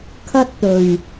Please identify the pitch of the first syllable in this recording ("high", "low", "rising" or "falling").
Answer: high